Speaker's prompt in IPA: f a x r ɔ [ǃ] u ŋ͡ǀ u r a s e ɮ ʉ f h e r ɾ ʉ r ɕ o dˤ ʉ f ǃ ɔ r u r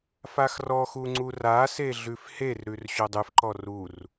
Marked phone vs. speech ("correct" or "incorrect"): incorrect